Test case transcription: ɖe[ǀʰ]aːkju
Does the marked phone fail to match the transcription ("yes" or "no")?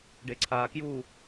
no